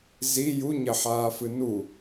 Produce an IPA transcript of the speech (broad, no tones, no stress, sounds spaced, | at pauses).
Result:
z i j u ɲ ɐ ħ aː f ɨ n u